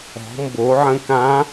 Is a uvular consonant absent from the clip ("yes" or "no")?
yes